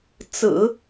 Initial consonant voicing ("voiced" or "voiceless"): voiceless